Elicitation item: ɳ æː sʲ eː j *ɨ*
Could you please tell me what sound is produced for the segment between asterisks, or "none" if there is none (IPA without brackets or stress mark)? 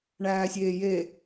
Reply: e